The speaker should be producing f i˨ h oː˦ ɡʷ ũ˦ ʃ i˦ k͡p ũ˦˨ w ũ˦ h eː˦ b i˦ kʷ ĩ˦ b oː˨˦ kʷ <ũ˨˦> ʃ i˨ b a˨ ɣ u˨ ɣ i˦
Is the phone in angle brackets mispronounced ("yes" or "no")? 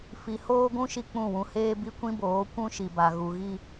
yes